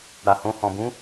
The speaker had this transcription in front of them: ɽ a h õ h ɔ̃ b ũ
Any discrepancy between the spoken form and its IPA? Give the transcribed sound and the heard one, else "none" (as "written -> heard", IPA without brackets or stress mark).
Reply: none